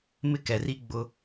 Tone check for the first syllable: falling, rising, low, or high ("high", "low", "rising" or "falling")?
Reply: high